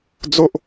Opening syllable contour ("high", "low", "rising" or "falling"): high